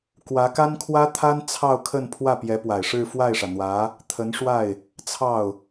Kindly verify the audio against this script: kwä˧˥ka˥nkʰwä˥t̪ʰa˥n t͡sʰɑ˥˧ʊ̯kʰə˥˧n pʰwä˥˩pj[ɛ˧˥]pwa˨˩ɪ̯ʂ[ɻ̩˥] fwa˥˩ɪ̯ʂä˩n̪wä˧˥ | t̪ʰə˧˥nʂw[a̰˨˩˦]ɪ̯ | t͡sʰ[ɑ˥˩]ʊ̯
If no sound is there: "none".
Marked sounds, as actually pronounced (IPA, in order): ɛ˧˥, ɻ̩˥˧, a˥˩, ɑ˥˩

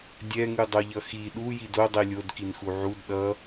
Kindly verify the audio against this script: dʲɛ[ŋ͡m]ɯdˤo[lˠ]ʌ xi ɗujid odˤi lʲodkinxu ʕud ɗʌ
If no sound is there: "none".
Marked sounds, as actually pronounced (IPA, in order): ŋ, ʎ

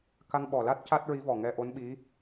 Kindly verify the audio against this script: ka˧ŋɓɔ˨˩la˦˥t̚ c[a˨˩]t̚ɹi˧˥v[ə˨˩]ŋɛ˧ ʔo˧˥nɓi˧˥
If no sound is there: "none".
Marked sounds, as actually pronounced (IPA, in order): a˦˥, ɔ˨˩

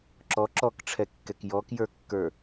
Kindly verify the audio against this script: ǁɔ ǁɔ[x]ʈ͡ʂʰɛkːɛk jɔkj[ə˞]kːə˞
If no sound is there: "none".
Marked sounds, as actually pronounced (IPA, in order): k, ə˞

